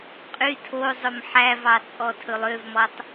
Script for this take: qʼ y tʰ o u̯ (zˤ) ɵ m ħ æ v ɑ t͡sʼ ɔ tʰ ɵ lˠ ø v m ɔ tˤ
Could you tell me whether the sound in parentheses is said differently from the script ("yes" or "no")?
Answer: no